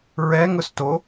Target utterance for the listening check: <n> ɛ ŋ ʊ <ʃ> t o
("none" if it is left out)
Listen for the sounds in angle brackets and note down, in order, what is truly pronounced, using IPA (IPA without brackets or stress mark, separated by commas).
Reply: ɹ, s